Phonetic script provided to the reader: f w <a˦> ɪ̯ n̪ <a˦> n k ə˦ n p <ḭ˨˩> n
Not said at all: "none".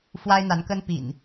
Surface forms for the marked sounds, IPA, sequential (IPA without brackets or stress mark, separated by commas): a˦, a˨˦, ḭ˨˩